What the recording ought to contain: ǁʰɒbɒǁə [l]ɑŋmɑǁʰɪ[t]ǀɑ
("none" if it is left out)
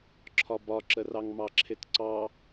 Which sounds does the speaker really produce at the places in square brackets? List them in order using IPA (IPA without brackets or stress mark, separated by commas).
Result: r, t